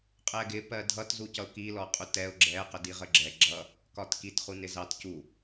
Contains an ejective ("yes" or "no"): yes